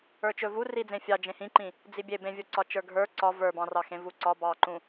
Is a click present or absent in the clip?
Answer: present